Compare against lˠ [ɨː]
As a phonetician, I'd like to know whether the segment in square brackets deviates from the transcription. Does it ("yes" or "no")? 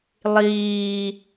yes